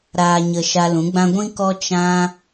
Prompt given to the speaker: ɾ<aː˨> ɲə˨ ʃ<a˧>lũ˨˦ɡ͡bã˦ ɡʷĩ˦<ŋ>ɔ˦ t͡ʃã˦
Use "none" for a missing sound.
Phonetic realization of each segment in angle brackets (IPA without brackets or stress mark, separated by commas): aː˨, a˧, k